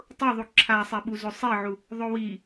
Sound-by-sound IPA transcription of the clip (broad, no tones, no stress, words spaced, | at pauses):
tˤʊðˤu ǁʰasˤɛɓuzo sˤeʕu | ðˤowi